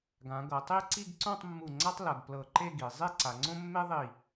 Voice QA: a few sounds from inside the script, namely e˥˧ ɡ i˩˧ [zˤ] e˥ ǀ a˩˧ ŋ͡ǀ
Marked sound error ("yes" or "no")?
no